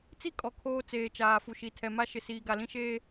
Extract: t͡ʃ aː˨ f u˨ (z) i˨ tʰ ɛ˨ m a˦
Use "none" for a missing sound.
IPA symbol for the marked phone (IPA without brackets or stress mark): ʃ